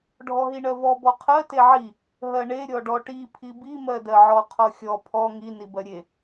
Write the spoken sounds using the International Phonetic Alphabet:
ɖʱ ɔ ɦ i ɳ ɜ v ɔ b ɔ qʰ ɜ t e ʕ i | ɦ ɜ ɳ e ɾʲ ɔ ɖ ɔ ʈ i pʰ i b i m ɜ d ɜ ʕ ɔ qʰ ɔ xʲ ɔ pʰ ɔ ŋ i n i b ɜ ɾʲ e

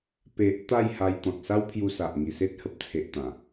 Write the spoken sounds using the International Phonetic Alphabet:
p e˨ ʔ t̪ a˥˧ j h a˧ j t̪ ɔ̃˨ t̚ s a˦ w pʰ j u˧ s a˨ ʔ ŋ i˨˩ s e˦ t̚ h ə˨ p̚ t͡sʰ e˨ ʔ t̪ ã˨˩

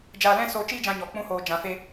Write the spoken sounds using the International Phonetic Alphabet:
d͡ʒ aː˧ l ɛ̃˦ s oː˧ t͡ʃ iː˦ d͡ʒ ã˧ ɲ ɔ˨ k͡p ũ˦ h oː˧ d͡ʒ ã˨ f e˧

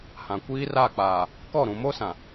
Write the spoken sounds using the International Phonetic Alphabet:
h ã˨ kʷ iː˦ r a˦˨ k͡p aː˨ | k ɔ˦˨ ɾ ũ˨ m o˦ s ã˨

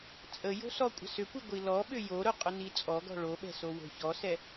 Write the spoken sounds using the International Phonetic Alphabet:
t͡sʼ ə j o̤ s ɔ kʷʼ ə̤ s ʏ kʷ i ɡʷ i l ɔ ɓ ʏ j o ɾ ʊ qʼ ʊ n i t͡sʼ ɔ ɡ ɔ̤ ɭ o ɓ ɛ̤ s o w o̤ ç ɔ s ɛ

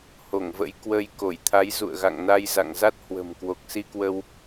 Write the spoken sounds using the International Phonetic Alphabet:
h o˧˩ ŋ v ə̰˧˥ j k w ə˧ j k o˧˩ j t̪ʰ a˨˦ j z ṵ˧˨ ə̯ ɣ a̰˧˨ ŋ n a˧ j z a̰˧˨ ŋ z a˦˥ t̚ h w ə̤˨˩ m k w o˨˩ k̚ s i˧ k w ə˧ w

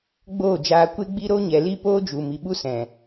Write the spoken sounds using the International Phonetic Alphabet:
ɡ͡b oː˦˨ d͡ʒ aː˧ kʷ e˧ ɡ͡b i˧ ɾ o˦ ɲ ɛ˨ l i˦ p oː˦ d͡ʒ u˨ m i˨ ɓ u˦ s ɛ̃˨

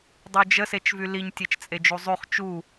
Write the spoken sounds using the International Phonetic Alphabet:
dˤ y d͡ʒ ə s e t͡ʃ v y l i ɲ tʲ e t͡ʃ t͡sʼ e d͡ʒ u zˤ y χ t͡ʃ u

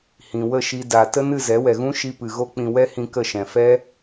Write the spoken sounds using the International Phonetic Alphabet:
h ĩ˨ w ə˦˨ ʃ i˧ d a˨ t ə˦ n ɨ˦˨ z ɛ˨˦ w ɛ˨ ɣ ũ˦ ʃ i˧ p ɨ˨ ɣ o˦ k͡p ĩ˧ w ɛ˦ h ĩ˧ k ə˦˨ ʃ ɛ̃˨ f ɛ˦

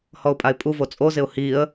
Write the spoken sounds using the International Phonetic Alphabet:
h ɔ ʊ̯ pʼ a ɪ̯ pʼ u v o t͡sʼ o z ɪ ʊ̯ h i ə̯

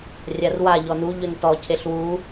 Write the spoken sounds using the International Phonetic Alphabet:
rʲ a r w a ʎ ɔ n u ʎ ɵ n t ɔ cʰ e ɬ w u

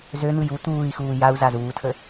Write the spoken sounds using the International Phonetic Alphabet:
z ø n̪ ɯ j u t̪ uː i̯ x uː j a u̯ z a z uː tʰ ə

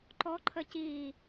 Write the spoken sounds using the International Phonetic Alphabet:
ǃ ɔ ǃʰ ə c i

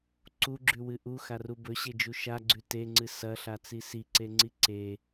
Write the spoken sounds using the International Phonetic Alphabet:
ǀ u ɡ͡ǁ ʉ w ɨ ʔ u x a r u b ɵ ɕ e d͡ʒ u ʃ a ɡ͡ǀ ʉ t e ŋ͡ǀ ɨ s ɐ ɬ a t͡s i s i ǀ e ŋ͡ǀ i ǀ e

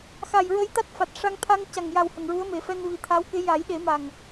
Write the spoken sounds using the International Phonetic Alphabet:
x a˨˩ j ɹ ə˧ j t̪ a˦˥ t̚ f a˨˩ t̚ ʂ a˧ ŋ t̪ʰ a˧ ŋ c a˨˩ ŋ j a˨˩ w h ə˨˩ ŋ ɹ u˧˥ ə̯ m e˨˩˦ f ɛ˧ n v i˨˩ t̪ʰ a˧˥ w k e˧˥ j a˨˩˦ j ɗ e˨˩˦ m a˨˩ ŋ

